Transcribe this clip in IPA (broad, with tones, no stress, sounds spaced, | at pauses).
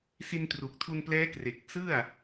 s i˧ n t r u˨˩ k̚ tʰ u˧ n p l ɛː˦˥ k r e˨˩ k̚ s ɯ˥˩ a̯